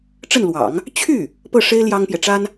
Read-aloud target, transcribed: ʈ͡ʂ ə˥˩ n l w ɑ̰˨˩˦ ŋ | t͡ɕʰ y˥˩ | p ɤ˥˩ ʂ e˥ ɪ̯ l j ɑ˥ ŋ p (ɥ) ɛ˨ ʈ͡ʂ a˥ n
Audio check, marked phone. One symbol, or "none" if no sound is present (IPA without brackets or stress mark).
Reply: j